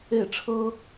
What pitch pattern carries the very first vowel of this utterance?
falling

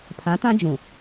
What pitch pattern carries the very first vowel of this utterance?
rising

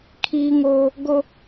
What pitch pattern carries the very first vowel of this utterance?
high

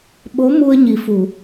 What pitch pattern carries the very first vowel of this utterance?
rising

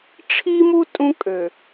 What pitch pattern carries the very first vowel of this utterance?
high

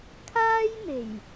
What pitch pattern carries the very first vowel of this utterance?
high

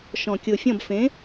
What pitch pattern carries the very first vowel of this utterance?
low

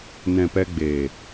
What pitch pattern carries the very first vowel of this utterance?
low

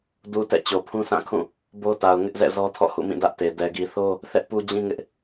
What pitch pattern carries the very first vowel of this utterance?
low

